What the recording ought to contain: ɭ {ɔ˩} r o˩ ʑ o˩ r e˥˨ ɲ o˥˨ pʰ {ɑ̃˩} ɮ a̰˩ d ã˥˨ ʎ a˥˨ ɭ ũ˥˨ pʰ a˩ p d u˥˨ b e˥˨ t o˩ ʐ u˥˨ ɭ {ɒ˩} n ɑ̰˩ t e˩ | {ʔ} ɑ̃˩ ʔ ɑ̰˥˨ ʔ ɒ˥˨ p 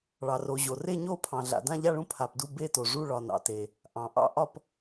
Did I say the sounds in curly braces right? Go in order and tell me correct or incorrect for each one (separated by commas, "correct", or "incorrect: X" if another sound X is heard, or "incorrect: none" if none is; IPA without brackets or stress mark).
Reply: incorrect: ɑ˩, correct, correct, correct